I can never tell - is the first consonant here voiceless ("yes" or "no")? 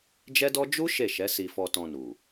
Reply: no